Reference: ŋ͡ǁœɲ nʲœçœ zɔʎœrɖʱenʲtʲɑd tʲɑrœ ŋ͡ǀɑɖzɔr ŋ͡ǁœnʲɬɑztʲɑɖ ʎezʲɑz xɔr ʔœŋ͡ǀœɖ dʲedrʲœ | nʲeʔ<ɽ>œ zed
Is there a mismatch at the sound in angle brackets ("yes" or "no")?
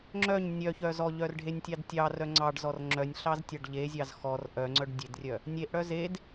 no